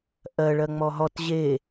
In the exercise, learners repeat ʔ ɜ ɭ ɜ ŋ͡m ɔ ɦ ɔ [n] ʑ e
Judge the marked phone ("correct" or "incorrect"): incorrect